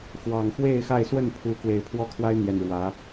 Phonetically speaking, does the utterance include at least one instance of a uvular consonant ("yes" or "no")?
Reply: no